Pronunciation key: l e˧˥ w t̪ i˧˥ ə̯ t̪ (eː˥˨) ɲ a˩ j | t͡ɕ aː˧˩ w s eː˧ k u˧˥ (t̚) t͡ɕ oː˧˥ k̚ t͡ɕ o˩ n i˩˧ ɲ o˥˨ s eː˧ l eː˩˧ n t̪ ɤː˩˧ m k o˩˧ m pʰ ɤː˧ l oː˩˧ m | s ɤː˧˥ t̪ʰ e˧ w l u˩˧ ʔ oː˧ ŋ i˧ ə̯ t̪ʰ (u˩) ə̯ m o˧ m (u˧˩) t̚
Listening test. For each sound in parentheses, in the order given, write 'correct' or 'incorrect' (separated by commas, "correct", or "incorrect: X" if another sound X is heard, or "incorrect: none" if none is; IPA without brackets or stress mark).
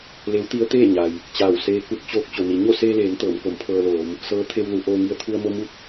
correct, correct, incorrect: u˧, incorrect: u˥˨